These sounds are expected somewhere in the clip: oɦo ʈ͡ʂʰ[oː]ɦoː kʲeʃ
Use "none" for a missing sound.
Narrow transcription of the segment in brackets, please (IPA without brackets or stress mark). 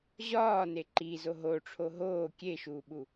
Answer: o